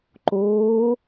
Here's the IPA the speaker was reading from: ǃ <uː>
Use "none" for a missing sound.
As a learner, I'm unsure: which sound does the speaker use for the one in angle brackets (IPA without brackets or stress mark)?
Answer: oː